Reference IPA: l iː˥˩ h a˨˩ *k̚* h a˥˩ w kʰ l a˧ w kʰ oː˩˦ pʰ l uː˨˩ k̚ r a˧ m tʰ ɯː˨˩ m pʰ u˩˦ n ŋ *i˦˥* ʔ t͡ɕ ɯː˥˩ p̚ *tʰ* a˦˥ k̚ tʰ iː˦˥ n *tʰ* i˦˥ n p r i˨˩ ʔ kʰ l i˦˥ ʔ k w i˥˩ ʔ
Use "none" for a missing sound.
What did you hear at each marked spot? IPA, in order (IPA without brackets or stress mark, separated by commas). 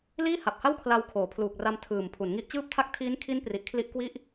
p̚, i˦˥, tʰ, kʰ